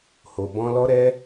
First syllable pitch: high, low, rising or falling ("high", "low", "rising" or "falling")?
low